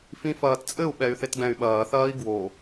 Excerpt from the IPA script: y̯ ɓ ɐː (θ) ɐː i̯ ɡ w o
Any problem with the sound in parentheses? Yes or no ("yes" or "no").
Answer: no